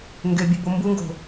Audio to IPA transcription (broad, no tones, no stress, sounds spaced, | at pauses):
ŋ ɡ e bʲ u b o m b u ŋ ɡ o̤